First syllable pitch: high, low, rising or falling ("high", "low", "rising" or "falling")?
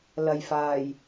low